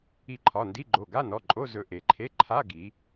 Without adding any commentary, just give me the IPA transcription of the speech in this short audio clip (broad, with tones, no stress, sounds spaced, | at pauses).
i˧ ǃʰ ɒ˩˧˩ n d i˧˥˧ ɡ͡ǃ o˩˧˩ ɡ a˧˥˧ n ɔ˩˧˩ ǃʼ o˧˥˧ z ɵ˧ ʔ e˩˧ ǃʰ e˧˥˧ ǃʰ a˧˥˧ ɡ i˩˧